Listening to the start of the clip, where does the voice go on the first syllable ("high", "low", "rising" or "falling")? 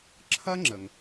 high